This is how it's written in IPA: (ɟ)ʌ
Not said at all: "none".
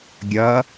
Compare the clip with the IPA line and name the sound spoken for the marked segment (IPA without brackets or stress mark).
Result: ɡʲ